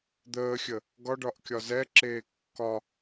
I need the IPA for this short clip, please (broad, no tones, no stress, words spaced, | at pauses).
d̪əːxʲə | ɡɒɖɒʔ kʲɒzɛǁeː kːɒ